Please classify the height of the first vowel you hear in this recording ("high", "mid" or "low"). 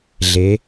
mid